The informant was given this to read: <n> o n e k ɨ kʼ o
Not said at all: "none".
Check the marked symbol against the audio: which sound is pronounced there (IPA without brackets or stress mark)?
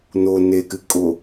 n